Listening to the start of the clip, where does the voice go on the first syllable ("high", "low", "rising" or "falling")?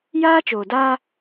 high